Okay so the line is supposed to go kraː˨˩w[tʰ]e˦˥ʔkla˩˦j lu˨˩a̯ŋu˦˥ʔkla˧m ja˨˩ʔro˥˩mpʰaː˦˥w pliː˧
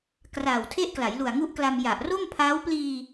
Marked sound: correct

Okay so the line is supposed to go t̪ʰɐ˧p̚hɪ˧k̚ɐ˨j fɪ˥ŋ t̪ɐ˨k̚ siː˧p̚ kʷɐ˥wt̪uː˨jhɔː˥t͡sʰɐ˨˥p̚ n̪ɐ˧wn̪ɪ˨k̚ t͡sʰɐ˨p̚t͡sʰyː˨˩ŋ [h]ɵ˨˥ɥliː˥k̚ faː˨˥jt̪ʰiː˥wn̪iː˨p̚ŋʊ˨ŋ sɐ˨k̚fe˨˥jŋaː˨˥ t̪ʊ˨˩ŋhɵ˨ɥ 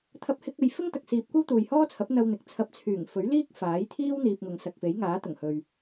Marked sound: incorrect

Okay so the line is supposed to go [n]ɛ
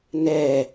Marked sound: correct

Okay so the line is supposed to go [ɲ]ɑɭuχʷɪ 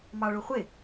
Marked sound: incorrect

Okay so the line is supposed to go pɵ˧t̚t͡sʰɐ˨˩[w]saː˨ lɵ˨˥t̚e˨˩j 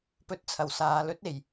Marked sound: correct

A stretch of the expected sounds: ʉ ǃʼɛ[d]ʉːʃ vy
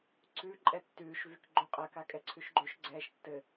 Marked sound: incorrect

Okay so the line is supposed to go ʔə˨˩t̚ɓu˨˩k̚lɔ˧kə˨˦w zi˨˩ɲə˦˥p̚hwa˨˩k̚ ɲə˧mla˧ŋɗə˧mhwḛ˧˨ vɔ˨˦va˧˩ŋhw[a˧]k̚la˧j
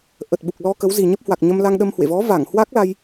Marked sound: incorrect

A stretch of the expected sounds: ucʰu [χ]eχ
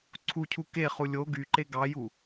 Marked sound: incorrect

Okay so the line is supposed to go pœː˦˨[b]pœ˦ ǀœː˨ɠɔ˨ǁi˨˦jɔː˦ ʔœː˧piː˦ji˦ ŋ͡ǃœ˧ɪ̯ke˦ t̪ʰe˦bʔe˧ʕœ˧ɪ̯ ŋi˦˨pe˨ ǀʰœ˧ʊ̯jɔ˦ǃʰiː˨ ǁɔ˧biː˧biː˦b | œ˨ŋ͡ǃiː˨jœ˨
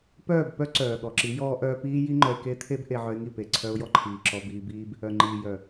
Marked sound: correct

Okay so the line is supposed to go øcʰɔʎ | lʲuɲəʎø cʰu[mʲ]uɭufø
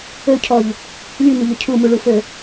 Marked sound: incorrect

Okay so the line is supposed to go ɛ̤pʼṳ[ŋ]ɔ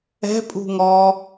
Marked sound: correct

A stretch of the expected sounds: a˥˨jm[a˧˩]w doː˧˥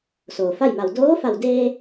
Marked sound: correct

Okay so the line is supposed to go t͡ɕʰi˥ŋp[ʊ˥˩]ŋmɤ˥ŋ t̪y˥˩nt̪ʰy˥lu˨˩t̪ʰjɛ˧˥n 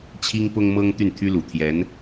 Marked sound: incorrect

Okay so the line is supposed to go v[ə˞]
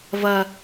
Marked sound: incorrect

